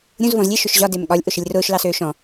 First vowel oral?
no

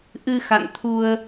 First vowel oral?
yes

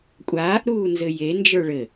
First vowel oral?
yes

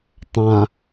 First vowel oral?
no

